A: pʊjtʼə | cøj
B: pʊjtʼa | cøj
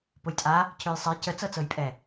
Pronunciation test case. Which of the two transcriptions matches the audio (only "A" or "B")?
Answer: B